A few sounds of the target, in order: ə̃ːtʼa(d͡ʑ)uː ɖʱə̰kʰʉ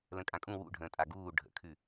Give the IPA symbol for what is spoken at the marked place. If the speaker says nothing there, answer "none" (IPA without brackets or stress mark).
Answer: ɡ